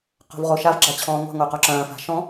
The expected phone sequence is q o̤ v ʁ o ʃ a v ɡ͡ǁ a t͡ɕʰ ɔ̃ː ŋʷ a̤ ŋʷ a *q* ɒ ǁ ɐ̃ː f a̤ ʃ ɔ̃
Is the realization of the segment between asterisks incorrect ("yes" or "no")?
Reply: no